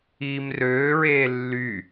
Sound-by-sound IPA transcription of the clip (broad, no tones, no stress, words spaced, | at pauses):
iːmrøːɹeː lːy